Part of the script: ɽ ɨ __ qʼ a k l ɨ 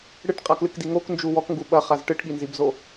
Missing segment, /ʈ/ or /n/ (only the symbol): ʈ